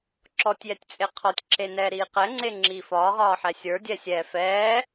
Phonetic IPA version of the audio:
ǁ ɔ tʲ j ɛ tʲ t͡sʼ e qʰ ɔ tʲ ǁ e n ɛː ɾ iː q ɛ ŋ͡ǀ e ŋ͡ǁ iː f ɒː ʁ ɒː ħ ɛ sʲ ə˞ dʲ ɛ sʲ ɛː f ɛː

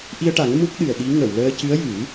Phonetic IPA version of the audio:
ʔ i˧ ə̯ ʈ a˨˩˦ ŋ m u˦˥ k̚ ɗ ɨ˨˩ ə̯ ɗ i˧˥ ŋ ə˨˩˨ w l əː˧ c ɨ˧˥ ə̯ j ɨ˨˩˦

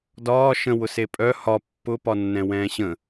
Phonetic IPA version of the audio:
d ɒː ʃ ə̃ w ʊ s e pʼ œ h ɒ pː ʊ p ɒ nː ɛ̃ w ɛ̃ː ɕ ə̃

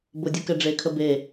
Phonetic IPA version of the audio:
b ʊ dʲ ɯ k ɛ ɖ͡ʐ e kʰ ə b e

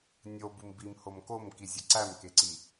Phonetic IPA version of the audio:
nʲ o b u m b i m h o m k o m k i zʲ ɒ ǀ æ m k e ǀ i

